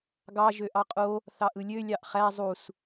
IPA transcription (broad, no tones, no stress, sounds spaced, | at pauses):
ɡ ɑ ʒ ø ʔ ɑ qʼ o | θ ɑ ʔ ɯ lʲ ø lʲ ɑ ʔ χ æ zˤ u s